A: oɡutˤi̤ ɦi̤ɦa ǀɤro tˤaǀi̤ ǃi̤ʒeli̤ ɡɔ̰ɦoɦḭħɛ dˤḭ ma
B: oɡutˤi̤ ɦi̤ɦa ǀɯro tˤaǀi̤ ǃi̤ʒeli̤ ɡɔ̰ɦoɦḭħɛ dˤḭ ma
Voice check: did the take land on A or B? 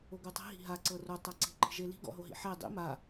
A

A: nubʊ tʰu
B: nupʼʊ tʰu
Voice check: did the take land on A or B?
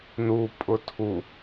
B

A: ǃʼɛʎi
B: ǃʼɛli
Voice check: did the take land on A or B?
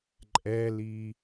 B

